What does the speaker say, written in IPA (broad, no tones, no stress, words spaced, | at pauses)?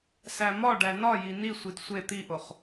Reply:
sæmɒɖæ nɒji nisʷid sʷe t̪iʔoχ